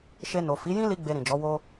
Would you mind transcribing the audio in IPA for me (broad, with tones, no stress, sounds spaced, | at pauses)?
ʃ e˧ n o˨ f i˨˦ j ĩ˦ l i˦ ɡ͡b e˧ ɾ ĩ˨ d͡ʒ ɔ˨˦ w o˦